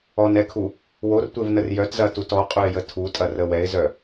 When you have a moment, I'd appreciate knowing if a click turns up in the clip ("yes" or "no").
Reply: no